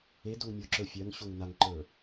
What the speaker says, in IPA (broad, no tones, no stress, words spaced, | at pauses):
edoŋ mʲo ǁə˞fʲɜŋɕoŋ naŋǃə˞